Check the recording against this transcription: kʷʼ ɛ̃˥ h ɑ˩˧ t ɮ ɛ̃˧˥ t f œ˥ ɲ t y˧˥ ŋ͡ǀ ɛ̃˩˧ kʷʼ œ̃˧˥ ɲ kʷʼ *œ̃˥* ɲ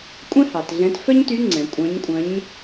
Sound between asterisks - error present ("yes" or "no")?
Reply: yes